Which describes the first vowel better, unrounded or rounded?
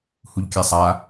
rounded